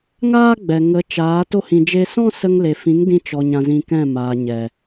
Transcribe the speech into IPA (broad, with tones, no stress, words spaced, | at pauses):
ŋaː˦ɡ͡bɛ˨ŋə˨˦t͡ʃaː˨˦ to˦hĩ˧d͡ʒe˦ sɔ̃˦sə˧ŋle˨fĩ˨˦ŋ dĩ˧t͡ʃɔ˨ ɲã˧zĩ˧kɛ̃˦˨ maː˨ ɲɛ˨